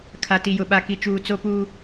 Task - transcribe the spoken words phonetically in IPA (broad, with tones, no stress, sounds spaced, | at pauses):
kʰ a˨ t i˨ j ʊ˨ ɓ a˨ k i˨ t͡ʃ uː˨ t͡s o˦ p uː˦